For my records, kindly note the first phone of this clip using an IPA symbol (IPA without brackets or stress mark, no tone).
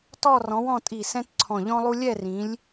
t